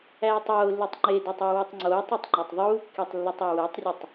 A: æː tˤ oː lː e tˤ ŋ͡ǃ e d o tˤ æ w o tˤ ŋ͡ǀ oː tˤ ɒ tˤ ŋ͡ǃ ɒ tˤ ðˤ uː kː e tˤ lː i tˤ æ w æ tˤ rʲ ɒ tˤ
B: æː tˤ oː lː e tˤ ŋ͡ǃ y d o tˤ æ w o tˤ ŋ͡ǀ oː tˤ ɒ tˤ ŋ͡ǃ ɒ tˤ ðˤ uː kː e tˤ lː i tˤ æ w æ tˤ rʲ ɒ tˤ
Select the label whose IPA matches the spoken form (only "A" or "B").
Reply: A